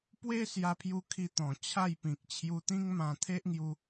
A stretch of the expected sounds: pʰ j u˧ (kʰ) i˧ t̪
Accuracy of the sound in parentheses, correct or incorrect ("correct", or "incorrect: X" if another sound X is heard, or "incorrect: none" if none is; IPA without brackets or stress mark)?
correct